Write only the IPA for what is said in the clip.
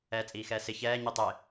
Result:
ɛːt͡sʼiːxɛːsɪ çɛː ɲitˤɪ

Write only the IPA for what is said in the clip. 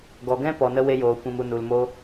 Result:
ɡɔ˨ɡɛ̃˦ pɔ˨nə˧ we˧joː˨kʷĩ˨mu˨ nu˨lmo˧

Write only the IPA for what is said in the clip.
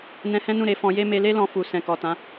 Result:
nɛ̃˧hɛ̃˦nũ˦˨ ɾe˧fɔ̃˧je˦ me˧le˦lɔ̃˧ fu˨ sɛ̃˨kɔ˨tã˨˦

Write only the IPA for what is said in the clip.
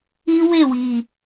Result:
i˦we˦˨wi˨

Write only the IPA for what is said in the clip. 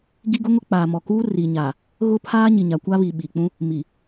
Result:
ɡi˦ɡʊ˦ŋʊ˦ k͡paː˨mɔ˨kuː˦ ri˨ɲa˨ | ɣʊ˦pʰaː˦ ɲi˨ɲa˨kʷa˦βi˨ ɓi˨k͡pũ˦ | mi˨

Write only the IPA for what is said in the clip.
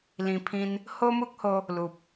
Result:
lĩ˧pʰĩ˦n | ho˦mu˦k̚ho˧ | lu˨p̚

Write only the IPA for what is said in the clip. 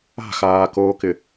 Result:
a̤xaːkoːkɪ

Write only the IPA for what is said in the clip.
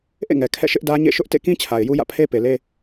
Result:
ʔḛ˦˨ŋɛ˨ kʰɛ̰˦˨ʃɪ˦ʔdä˦ ɲḛ˦˨ʃʊ˦ʔ tḛ˦˨kĩ˦ t͡ɕʰa˨ɪ̯ju˦jä̰˦˨ pʰe˦pe˨le˦

